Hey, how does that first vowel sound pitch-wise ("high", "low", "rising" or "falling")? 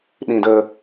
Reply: low